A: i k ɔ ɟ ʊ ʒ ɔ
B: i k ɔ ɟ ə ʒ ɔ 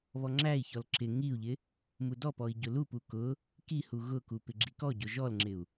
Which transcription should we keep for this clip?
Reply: A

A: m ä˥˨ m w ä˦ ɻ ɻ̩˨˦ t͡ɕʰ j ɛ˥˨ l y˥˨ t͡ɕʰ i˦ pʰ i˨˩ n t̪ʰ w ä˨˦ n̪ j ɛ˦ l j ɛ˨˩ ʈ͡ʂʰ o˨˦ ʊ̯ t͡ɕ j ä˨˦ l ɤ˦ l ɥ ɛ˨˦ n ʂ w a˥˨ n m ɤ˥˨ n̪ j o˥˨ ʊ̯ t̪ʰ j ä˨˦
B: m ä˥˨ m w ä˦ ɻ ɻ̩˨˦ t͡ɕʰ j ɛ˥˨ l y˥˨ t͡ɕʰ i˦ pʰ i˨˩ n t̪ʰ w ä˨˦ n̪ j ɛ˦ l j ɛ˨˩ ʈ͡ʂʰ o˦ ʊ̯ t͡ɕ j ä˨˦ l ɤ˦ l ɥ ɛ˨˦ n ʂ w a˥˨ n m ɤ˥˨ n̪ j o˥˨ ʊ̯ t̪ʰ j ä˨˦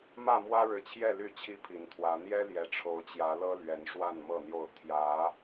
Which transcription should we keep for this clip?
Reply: A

